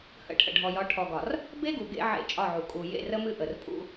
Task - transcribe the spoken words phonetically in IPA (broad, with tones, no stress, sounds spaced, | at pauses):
h ə̰˦˨ ʈʰ ə̰˨ ɖʱ ɔ˨ j ɒ˨˦ ʈʰ ɔ˨ ɡ ɒ˨ r | b e˦ ɡ u˨ ɡ ḛ˦ ʕ ḛ˦˨ t͡ʃʼ ɒ˦˨ ʕ u˨ kʼ u˨ j ḛ˦˨ r ə˦ m ɨ˦ ʔ ə˨ r pʼ ṵ˦